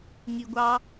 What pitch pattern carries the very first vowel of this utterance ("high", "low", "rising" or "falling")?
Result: low